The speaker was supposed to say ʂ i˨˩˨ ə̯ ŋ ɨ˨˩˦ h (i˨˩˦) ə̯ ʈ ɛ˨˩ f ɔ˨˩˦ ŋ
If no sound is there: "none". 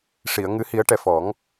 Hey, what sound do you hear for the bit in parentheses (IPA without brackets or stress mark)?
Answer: i˨˩˦